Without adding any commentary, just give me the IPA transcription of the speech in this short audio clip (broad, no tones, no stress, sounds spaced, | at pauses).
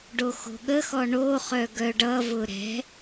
ɖ o x o̤ ɠ ə x ɔ ɳ o χ œ ɡ œ ɖ ʌ v ʊ ɾ ɛ̤